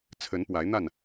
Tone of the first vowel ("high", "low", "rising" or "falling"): rising